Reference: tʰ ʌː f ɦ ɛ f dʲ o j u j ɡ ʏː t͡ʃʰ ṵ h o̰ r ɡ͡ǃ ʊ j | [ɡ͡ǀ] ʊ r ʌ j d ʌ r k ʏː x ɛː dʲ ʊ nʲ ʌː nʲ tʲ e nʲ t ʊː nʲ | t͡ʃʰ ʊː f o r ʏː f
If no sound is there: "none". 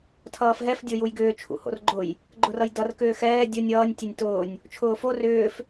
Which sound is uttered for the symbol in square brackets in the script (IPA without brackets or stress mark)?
ɡ͡ǃ